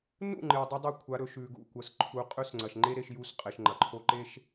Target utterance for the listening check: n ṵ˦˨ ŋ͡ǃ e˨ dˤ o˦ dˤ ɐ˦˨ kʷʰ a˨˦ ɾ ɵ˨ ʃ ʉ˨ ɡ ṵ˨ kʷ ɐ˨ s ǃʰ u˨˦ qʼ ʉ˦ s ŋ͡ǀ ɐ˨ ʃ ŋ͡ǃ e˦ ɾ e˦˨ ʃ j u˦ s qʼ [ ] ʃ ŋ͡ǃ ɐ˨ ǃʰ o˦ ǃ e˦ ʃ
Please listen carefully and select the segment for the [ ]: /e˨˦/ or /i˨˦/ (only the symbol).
e˨˦